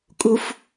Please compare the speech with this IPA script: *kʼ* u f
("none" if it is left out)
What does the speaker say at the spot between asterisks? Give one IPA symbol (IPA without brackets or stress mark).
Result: kʼ